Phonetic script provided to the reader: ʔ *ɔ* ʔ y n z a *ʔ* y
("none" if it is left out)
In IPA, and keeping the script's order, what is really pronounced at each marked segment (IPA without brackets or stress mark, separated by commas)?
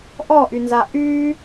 ɔ, ʔ